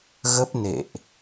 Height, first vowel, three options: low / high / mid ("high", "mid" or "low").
mid